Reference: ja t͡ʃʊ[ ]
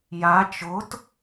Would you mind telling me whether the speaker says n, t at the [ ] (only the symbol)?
t